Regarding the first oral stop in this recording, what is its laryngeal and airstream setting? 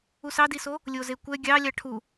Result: plain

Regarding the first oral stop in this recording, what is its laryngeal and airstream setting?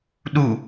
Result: implosive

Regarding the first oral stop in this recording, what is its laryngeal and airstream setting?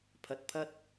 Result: aspirated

